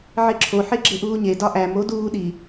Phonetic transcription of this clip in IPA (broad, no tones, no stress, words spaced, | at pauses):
ʕeǁʰo ħeɡ͡ǁeʔuːɲe dɒʔæm oduː ɗi